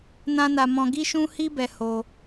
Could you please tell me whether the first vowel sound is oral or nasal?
nasal